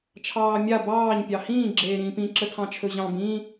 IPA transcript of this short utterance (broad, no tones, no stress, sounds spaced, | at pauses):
t͡ʃʰ ɑː mʲ a b ɑː ɲ pʲ ɑ h ĩː ɡ͡ǁ eː ɾ ĩː p ĩ ǁ ə tʰ ɑ̃ t͡ʃʰ ɵ ʑ ɑ̃ b ĩ